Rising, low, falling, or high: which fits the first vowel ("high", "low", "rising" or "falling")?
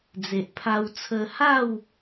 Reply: low